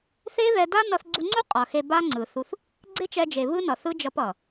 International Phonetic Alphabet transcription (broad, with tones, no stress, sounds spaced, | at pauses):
θ e˦ β ɛ˧ d a˦ n ʌ˧ θ ɡ͡ǀ u˧ ŋ͡ǀ u˦ qʼ ʌ˨ x e˧ b a˦ ŋ͡ǀ ɯ˨ θ u˧ θ | ɡ͡ǀ e˦ t͡ʃ ɛ˧ d͡ʒ e˨ β ɯ˦ n ʌ˨ θ ɯ˦ d͡ʒ ʌ˧ p ʌ˨